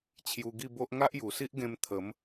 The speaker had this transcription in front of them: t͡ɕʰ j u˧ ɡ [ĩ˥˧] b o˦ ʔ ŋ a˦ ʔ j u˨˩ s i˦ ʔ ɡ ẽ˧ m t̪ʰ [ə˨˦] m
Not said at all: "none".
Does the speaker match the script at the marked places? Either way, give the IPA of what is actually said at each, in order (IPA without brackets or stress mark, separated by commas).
i˥˧, ə˨˦